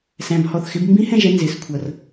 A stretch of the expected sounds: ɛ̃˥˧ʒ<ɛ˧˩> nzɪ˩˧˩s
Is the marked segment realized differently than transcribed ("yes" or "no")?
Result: yes